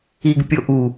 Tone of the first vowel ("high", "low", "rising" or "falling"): low